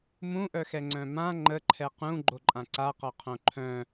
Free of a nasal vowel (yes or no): no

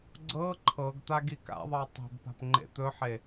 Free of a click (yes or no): no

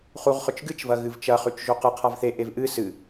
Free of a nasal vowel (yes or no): yes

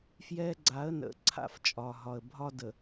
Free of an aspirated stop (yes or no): no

